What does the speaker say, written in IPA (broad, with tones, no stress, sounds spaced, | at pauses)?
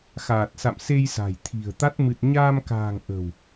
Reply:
x aː˨˩ t̚ s a̰˧˨ m s e˧ j s a̤˨˩ j t̪ʰ i̤˨˩ ə̯ t̪ a˦˥ t̚ m ɨ˨˩ t̚ ɲ aː˧ m k a̤ː˨˩ ŋ ʔ ə̤˨˩ w